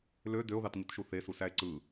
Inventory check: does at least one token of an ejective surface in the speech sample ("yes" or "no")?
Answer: no